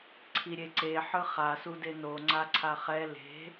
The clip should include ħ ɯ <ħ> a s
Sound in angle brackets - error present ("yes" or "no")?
yes